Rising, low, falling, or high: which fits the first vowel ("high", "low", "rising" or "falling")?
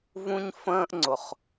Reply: high